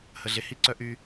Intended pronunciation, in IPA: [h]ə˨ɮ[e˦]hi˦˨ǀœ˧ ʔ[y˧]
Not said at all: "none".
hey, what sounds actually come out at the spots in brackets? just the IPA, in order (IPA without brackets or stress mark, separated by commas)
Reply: h, e˨, y˧